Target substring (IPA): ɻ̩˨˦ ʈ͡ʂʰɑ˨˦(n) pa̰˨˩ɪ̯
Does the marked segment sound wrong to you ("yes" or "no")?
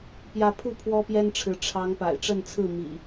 yes